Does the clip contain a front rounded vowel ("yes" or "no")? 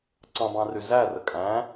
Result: yes